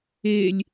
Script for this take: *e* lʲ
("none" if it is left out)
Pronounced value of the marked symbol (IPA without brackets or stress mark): e